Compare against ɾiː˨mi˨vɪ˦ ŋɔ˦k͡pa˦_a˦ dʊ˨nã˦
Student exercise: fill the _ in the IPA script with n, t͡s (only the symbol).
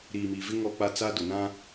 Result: t͡s